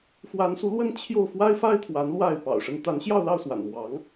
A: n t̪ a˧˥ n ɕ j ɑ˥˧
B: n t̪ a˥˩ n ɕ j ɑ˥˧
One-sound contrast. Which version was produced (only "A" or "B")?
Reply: A